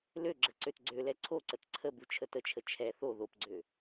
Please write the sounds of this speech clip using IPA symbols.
løɡ͡ǁə ǀøtɡ͡ǀølɛ ǀʰoǀət ǀʰəbu t͡ʃʰətət͡ʃʰə t͡ʃʰɛ θo ðopɡ͡ǀø

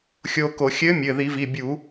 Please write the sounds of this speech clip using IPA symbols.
xʲoː˧ko˧˩˧ xʲɘː˧˥mʲɘː˩˧˩ði˧˩˧vi˩˧˩ bʲu˧˩˧

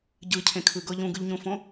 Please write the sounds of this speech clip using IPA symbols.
ɟɯcʰẽkʰɯɡɤ ʎũɡɯʎɲũfõ

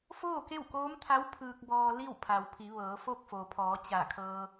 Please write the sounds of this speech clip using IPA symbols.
foː˥˨ke˥˨wkoː˧˥mt̪ʰa˧˥w pʰɯː˧k̚bɔː˧ li˥˨wpʰa˩wpʰi˩˧ ʋɤː˩˧fo˥˨k̚fo˩pʰɔː˩˧ t͡ɕa˧˩kʰɤː˧

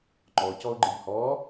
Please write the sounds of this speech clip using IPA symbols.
ŋ͡ǃɔ cɔʊ̯ɡ͡ǃɨʎhɔ

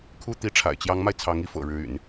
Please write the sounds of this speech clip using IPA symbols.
kʰu˥˩ t̪i˧˥ʈ͡ʂʰa̰˨˩ɪ̯t͡ɕjɑ˧˥ŋma˧ɪ̯ t͡sʰɑ˧˥ŋi˧˥fɤ̰˨˩ ɻɻ̩˧˥y̰˨˩˦n

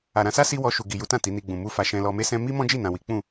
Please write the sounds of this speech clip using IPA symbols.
a˨ɾã˧sa˦ si˦wɔ˧ ʃu˨ɡi˨ju˨˦tã˦˨ ti˨˦ni˧ɡ͡bũ˨ mu˧fa˨ ʃɛ̃˧lɔ˧me˦ sɛ̃˦ mi˦ mɔ̃˦d͡ʒi˦˨ nã˨wi˨˦ k͡pũ˦˨

